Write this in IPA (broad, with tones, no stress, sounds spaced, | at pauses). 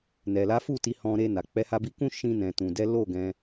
n ɛ˨ l a˨˦ f u˦˨ t i˨˦ h ɔ̃˧ ɾ e˧ n a˨ k͡p ɛ˨˦ h a˧ b i˧ k ũ˦ ʃ ĩ˧ n ɛ̃˨ t ũ˨ d ɛ˨˦ l o˦˨ ɡ ɛ̃˧